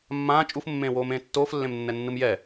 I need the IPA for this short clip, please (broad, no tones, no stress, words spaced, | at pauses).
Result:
mːãː t͡ʃʼufmːẽːwoːmẽː tːoːflːẽmnːɛnːɯm jɛ